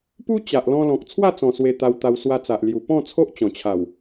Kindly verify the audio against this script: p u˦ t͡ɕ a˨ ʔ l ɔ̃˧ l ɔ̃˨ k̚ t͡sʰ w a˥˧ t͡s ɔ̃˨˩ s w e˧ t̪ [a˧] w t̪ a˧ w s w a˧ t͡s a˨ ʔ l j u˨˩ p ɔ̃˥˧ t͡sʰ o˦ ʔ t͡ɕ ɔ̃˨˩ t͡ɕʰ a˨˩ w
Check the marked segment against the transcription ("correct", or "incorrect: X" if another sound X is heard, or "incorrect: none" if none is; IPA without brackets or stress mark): correct